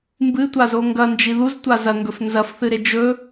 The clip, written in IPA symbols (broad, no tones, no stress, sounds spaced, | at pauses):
m b ɨ tʷ a z o ŋ ɡ ɐ n d͡ʒ i ð u z tʷ a z ɐ ŋ ɡ ɵ f n z ɐ f θ ɨ ɾ e d͡ʒ ɵ